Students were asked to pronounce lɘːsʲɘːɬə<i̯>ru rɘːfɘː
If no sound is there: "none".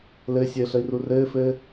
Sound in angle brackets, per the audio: i̯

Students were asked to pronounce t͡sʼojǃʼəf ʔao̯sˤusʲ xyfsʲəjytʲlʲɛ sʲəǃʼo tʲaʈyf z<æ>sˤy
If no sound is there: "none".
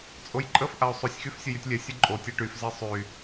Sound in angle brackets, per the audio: ɛ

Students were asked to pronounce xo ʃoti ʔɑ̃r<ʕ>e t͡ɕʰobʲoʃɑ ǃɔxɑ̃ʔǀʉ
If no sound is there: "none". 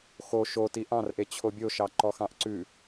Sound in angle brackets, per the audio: ʔ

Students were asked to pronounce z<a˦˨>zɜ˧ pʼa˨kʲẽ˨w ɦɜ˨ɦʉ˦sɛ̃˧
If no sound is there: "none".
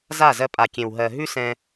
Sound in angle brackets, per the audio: a˦˨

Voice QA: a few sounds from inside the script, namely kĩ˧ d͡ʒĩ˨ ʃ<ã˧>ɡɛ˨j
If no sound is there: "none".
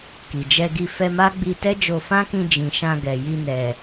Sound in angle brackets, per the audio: ã˧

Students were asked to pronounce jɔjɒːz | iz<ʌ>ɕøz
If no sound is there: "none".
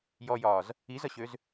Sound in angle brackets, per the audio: ʌ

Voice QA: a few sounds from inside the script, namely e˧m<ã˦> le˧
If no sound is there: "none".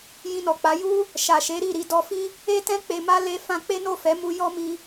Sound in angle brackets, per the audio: a˦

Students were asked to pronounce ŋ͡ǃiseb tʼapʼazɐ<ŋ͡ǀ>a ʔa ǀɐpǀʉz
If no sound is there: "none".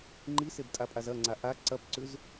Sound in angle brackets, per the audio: ŋ͡ǀ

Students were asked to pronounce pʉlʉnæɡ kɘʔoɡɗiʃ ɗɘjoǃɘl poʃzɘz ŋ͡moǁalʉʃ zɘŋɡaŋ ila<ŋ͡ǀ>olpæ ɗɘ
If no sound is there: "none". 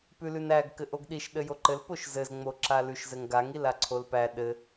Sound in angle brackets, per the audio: ǀʰ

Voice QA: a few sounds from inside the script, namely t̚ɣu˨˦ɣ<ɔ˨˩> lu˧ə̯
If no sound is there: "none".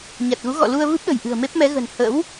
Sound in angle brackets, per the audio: ɔ̰˧˨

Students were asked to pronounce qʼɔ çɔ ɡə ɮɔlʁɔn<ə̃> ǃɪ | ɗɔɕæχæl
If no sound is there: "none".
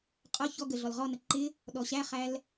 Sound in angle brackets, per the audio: ə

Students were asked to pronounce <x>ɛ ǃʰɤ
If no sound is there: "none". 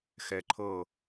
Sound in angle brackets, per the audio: x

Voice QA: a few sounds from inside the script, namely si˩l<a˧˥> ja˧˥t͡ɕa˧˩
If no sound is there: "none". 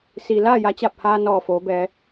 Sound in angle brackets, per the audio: a˥˨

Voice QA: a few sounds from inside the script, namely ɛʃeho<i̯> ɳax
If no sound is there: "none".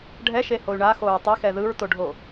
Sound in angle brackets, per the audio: y̯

